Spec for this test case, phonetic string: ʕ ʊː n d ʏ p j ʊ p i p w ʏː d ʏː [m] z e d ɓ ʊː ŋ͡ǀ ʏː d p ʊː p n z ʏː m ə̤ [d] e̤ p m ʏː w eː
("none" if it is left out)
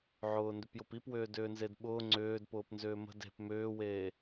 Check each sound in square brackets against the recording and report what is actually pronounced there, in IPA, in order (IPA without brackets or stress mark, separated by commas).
n, d